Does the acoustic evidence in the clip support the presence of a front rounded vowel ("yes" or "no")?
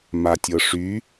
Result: yes